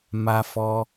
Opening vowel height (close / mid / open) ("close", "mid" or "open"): open